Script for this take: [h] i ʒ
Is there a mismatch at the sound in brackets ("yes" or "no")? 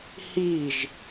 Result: no